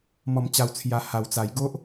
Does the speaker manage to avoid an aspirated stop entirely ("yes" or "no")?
no